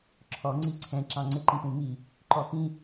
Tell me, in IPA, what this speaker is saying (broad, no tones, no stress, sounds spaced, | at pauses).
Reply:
ǁʰ ɔ ŋ͡ǀ i ǀʰ ɛ̃ ǁ ɑ̃ ŋ͡ǀ ɪ ǃ ĩ p ũ m i | ǃ ɔ x ĩ